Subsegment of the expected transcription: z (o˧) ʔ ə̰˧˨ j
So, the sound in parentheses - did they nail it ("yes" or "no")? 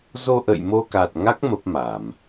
yes